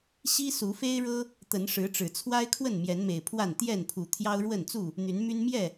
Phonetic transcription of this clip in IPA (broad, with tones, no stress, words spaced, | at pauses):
ɕi˦ su˨˦fe˦ɪ̯ɻɤ˦ | t̪ə˨˦nʂɻ̩˨˦ʈ͡ʂɻ̩˨˩ t͡sʰwa˦ɪ̯kʰwə˥˨n mjɛ˨˦nme˨˩ɪ̯pʰwa˥˨n t̪jɛ˥˨npʰu˨˩ t̪ʰjɑ˦ʊ̯ɻwə˥˨nt͡su˥˨ | n̪y˨˦nmy˦n mjɛ˥˨